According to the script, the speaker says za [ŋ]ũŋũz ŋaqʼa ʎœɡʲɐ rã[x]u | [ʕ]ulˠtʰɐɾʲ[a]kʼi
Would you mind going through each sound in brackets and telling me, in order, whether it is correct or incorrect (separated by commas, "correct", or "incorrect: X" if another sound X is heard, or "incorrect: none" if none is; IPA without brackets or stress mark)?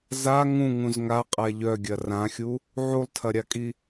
correct, incorrect: xʲ, correct, correct